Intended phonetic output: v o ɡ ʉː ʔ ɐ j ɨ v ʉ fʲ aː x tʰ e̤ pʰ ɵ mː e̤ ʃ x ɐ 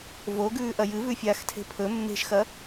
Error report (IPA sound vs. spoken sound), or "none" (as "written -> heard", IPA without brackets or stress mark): none